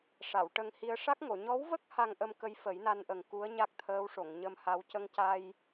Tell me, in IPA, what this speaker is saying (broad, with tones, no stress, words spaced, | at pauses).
ʂa˨˩˨w ʈə˧ŋ hi˧ə̯ ʂa˦˥k̚ŋo˨˩˨ ɲɔ˧˥wvə˦˥k̚ ha˧ŋʔə˧mkə˧˥j fə˨˩˦jna˧nʔə˨˩ŋ ku˧˥ə̯ ɲa˦˥k̚t̪ʰəː˧˥wʂo˨˩˨ŋ ɲə˧mha˧˥w cə˧ŋca˧j